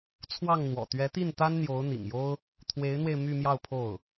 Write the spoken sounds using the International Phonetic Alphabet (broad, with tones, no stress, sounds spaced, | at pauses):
t͡sʰ w ɑ˥˩ ŋ n̪ w ɔ̰˨˩ t̪ ɥ ɛ˧˥ t̪ i˥˩ n t̪ a˥ n n̪ j o˧˥ ʊ̯ n̪ ḭ˨˩ ŋ j o˥ ʊ̯ | t̪ʰ w e˧˥ ɪ̯ n̪ w e˧ ɪ̯ m y˥˧ m j ɑ˥˧ ʊ̯ pʰ o˥˩ ʊ̯